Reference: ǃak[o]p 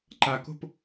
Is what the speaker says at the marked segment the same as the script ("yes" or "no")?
no